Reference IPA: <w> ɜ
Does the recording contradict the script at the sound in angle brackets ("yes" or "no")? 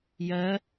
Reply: yes